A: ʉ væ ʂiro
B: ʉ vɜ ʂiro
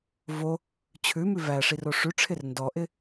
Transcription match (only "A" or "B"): A